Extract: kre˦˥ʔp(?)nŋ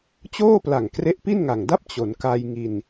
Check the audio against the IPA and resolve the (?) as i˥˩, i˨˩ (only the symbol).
i˥˩